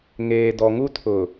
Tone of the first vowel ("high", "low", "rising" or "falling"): low